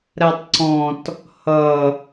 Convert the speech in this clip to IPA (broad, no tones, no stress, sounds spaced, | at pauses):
ɾ æ tˤ ǀ ɔ̃ t | h ʌ